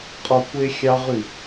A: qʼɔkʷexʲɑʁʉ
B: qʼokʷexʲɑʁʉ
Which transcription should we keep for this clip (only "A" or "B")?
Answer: A